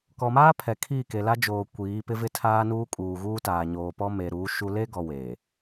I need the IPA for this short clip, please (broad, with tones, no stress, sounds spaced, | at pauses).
k ɔ˨ m aː˦ pʰ ɛ˨ kʰ iː˦˨ k e˨ l a˦ d͡ʒ oː˨ kʷ iː˨˦ p ɪ˦ v ɪ˦ tʰ aː˦ n uː˦ kʼ uː˨ ɣ uː˦ t aː˨ ɲ oː˨ p ɔ˦ m e˨ ɾ uː˨˦ ʃ u˦ l e˦ ɡ ɔ˨ w eː˨